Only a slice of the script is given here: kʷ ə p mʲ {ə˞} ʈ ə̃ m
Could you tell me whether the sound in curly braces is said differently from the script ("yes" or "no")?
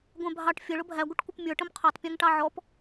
no